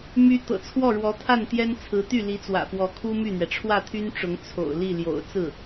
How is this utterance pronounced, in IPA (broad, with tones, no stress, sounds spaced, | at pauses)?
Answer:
m y˥ t̪ ɤ̰˨˩ t͡sʰ w ɔ˥˩ ɻ w ɔ˧˥ t̪ʰ a˥˩ n t̪ j ɛ˥ n t͡sʰ ɹ̩˧˥ t̪ y˥˩ l i˧˥ t͡s w ä̰˨˩ f w ɔ˧˥ kʰ u˥ m y˥˩ n̪ ɥ ɛ˩ ʈ͡ʂʰ w ä˥˩ t̪ʰ y˥ n ʈ͡ʂ ʊ˧˥ ŋ t͡sʰ o̰˨˩ ʊ̯ l i˥˩ l j o̰˨˩ ʊ̯ t͡s ɹ̩˥˩